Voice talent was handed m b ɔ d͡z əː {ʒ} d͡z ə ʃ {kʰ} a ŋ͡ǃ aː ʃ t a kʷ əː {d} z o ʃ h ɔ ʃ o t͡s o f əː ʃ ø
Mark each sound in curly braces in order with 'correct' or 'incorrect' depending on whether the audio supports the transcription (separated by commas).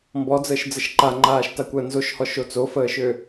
incorrect, incorrect, incorrect